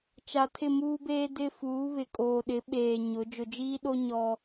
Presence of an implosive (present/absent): present